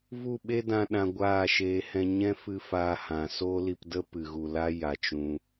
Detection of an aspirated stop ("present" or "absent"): absent